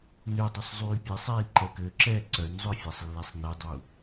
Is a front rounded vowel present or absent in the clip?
present